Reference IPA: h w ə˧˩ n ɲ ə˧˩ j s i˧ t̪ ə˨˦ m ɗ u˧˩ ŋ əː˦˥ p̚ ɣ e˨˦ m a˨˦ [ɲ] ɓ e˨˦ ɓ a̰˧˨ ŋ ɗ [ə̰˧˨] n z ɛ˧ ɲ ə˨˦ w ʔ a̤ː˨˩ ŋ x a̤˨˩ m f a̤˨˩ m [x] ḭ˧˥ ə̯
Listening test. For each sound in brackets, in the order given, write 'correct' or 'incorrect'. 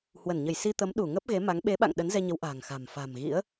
incorrect, incorrect, incorrect

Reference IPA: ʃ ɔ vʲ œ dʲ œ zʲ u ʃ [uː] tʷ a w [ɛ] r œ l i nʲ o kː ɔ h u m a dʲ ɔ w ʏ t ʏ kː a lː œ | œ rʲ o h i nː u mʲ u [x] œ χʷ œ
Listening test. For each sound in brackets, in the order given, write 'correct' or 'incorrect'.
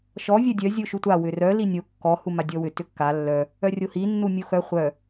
incorrect, incorrect, correct

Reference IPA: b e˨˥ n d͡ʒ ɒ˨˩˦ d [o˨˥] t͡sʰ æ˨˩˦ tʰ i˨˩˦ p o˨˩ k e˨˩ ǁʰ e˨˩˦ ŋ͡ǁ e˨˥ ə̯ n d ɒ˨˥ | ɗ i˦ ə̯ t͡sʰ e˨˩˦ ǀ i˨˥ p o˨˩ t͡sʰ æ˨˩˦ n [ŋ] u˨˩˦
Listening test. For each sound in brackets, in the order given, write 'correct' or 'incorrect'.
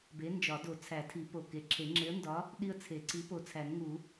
incorrect, correct

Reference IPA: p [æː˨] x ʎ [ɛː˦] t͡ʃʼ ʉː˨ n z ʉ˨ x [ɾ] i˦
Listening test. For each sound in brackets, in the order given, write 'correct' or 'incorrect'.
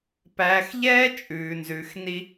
correct, correct, incorrect

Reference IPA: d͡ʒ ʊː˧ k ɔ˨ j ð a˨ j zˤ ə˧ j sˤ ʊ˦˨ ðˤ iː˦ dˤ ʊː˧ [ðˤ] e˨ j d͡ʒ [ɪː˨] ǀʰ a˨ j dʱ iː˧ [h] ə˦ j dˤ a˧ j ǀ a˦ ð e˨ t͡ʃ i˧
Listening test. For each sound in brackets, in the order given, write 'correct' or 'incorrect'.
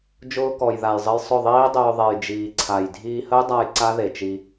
correct, incorrect, correct

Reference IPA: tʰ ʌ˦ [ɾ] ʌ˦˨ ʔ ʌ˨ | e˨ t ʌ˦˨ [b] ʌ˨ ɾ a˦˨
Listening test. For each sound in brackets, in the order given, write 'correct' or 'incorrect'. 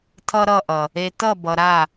correct, correct

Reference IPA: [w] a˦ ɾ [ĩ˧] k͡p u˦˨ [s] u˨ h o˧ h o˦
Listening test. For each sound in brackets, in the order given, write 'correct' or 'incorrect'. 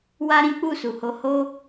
correct, incorrect, correct

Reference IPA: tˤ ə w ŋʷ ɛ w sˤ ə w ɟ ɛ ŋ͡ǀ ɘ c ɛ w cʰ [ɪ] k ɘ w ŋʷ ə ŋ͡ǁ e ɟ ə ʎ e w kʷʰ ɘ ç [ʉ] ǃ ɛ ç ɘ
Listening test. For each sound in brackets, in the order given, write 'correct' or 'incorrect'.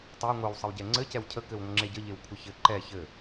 incorrect, incorrect

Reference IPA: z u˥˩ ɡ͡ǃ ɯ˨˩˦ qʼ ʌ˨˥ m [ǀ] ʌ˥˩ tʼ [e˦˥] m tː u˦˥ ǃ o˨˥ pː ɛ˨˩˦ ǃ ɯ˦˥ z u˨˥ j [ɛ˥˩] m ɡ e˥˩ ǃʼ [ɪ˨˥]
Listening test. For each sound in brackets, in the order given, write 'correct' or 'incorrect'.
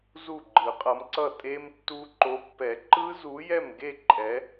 correct, correct, correct, incorrect

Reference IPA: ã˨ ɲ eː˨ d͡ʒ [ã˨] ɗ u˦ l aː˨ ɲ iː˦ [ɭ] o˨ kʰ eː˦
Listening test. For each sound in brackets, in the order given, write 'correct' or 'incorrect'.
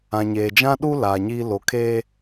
incorrect, incorrect

